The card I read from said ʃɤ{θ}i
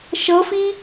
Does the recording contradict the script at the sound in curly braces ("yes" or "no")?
yes